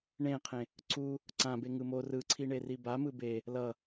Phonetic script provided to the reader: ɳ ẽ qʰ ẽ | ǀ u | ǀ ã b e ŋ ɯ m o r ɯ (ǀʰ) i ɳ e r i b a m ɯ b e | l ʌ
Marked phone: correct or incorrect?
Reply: correct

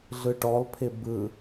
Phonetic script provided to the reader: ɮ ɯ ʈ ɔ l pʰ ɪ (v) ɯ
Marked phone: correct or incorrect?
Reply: incorrect: b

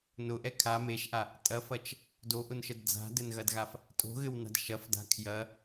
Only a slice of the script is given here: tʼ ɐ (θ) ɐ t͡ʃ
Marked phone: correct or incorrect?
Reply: incorrect: f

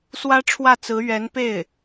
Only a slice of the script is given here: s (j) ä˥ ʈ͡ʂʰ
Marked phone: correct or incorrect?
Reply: incorrect: w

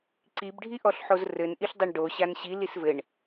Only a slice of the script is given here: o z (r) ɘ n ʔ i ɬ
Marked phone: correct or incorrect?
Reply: correct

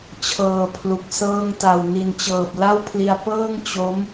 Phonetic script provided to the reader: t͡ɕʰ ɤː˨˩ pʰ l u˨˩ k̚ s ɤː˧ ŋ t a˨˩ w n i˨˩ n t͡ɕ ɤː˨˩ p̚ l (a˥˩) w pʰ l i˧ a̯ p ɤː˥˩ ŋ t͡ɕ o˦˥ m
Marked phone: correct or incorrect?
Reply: correct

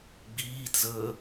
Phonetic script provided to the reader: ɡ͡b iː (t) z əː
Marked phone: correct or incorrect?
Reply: correct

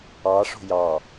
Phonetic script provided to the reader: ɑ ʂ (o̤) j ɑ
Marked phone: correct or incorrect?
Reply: correct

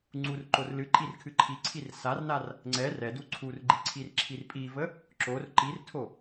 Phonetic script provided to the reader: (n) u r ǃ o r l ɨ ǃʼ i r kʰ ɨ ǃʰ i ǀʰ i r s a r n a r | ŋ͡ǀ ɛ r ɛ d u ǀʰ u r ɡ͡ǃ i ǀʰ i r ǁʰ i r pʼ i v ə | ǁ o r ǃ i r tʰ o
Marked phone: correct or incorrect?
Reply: incorrect: ŋ͡ǀ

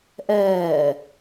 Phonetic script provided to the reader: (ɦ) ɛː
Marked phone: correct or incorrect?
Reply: incorrect: ʔ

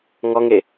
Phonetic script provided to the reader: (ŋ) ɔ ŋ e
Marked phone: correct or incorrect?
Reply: correct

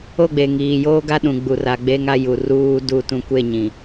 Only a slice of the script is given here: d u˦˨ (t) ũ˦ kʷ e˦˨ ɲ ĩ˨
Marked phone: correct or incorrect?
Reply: correct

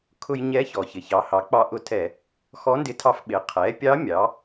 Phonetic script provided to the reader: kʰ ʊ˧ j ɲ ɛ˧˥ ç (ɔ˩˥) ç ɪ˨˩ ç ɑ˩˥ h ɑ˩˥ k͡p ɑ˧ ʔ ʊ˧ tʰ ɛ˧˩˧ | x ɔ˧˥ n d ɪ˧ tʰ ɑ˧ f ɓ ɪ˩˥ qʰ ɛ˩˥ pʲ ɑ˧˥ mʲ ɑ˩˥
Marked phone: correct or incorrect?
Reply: incorrect: ɔ˨˩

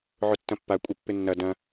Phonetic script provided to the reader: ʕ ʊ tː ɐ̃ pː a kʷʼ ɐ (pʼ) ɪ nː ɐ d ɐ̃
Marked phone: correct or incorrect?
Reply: incorrect: pː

